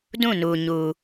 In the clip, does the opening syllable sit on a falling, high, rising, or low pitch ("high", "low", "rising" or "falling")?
falling